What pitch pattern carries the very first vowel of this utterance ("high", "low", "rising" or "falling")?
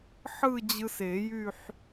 falling